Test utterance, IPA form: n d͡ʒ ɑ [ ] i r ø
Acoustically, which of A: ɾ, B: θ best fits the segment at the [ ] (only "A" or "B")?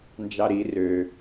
A